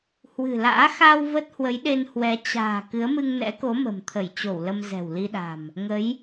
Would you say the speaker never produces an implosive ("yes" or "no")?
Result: no